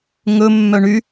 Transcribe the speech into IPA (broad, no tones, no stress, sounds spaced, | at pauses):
ŋ ɵ mː œ ɳ y